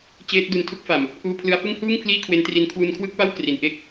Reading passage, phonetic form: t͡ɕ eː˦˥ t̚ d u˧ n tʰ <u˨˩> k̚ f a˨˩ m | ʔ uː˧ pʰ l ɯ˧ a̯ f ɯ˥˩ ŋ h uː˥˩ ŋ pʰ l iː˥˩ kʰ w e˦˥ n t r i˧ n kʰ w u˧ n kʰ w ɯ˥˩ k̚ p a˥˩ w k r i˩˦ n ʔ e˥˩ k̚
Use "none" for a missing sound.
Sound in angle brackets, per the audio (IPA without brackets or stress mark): u˥˩